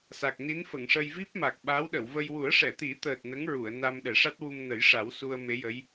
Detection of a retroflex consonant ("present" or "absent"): present